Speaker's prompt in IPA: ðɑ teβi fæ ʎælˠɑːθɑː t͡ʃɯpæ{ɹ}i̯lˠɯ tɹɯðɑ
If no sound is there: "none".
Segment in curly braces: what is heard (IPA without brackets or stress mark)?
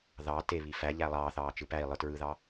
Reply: none